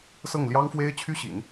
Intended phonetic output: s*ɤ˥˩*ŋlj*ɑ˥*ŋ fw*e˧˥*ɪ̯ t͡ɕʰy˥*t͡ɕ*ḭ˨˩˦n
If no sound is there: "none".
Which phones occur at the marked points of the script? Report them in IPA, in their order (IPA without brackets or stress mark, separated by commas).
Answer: ɤ˥˩, ɑ˥, e˥, ɕ